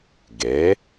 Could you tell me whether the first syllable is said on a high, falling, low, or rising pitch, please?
rising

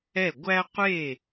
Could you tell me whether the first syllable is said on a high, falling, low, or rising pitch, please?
falling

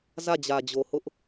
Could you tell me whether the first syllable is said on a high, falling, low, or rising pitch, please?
falling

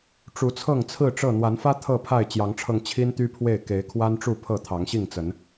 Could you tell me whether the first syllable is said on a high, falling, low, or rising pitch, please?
rising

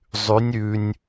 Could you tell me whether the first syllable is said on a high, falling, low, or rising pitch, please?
rising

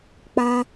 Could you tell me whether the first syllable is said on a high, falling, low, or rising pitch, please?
high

